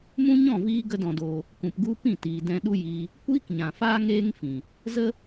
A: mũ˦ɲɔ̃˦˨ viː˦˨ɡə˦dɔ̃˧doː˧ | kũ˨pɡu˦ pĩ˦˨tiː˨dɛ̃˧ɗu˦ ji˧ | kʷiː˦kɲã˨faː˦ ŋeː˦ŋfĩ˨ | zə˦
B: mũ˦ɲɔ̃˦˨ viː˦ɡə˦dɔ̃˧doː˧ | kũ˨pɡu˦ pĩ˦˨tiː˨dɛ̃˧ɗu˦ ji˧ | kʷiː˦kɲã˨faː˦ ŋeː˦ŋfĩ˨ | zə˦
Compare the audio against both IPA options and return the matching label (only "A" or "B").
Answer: B